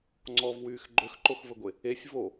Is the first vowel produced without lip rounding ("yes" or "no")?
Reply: no